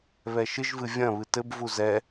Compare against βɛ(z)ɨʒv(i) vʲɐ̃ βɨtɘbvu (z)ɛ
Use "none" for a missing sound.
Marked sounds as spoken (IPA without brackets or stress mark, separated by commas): ʃ, ɨ, z